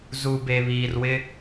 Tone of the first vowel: low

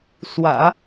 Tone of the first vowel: low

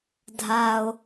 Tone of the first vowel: low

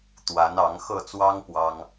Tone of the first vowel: rising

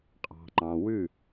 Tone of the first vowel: low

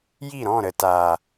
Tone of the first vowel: falling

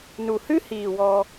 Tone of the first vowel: low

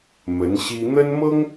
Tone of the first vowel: rising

